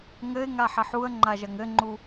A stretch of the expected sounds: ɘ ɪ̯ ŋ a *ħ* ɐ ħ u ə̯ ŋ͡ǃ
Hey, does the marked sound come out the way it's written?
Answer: yes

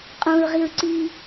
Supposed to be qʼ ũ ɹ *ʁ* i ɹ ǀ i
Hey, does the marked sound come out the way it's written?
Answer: yes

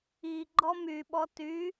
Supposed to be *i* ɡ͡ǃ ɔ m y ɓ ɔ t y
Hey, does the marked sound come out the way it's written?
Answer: yes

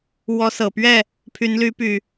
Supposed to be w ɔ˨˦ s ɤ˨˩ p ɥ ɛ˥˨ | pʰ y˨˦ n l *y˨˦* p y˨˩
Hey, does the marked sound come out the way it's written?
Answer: yes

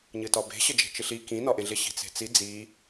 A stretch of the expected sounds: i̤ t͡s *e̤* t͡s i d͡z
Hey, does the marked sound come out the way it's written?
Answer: yes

